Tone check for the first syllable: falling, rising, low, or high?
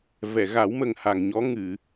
low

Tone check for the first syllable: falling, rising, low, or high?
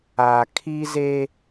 low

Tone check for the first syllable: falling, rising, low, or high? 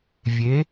rising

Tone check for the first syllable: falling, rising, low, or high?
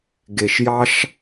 low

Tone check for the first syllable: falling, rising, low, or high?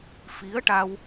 rising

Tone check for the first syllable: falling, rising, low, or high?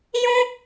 high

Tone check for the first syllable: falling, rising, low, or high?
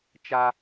high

